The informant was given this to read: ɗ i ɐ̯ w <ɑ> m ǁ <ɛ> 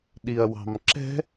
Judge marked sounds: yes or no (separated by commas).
no, no